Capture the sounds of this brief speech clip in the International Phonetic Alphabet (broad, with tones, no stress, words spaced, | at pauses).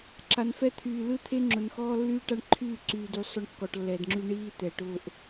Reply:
ǁa˨nfɛ˦t̪ʰyː˨ lɯ˦t̪ʰe˦ ŋ͡ǁʊ˨nxɔː˦ lːyː˦ʈa˦ɳǃʰyː˦˨ ǀyː˨dy˨ sˤʊ˦ɳkːɔ˨ʈlːɛ˨dŋ͡ǁy˦ ɳiː˦ t̪ɛ˨ʈʊː˦ʔ